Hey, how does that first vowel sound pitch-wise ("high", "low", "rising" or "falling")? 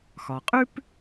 low